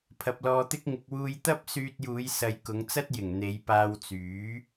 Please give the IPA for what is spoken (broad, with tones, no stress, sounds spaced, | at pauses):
pʰ ɐ˧ p̚ l ɔː˧ t̪ ɪ˥ k̚ ŋ ɪ˧ k̚ w uː˧ j t̪ ɐ˥ p̚ s yː˧ t̚ j uː˨˧ j s ɐ˨ j k ʊ˨˧ ŋ t͡s ɐ˥ t̚ j ɪ˨˩ ŋ n̪ e˨˧ j p aː˧ w t͡s yː˨˥